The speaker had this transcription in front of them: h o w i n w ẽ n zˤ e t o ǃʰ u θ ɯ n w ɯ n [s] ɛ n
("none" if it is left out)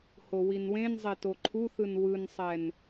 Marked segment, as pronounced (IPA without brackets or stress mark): sˤ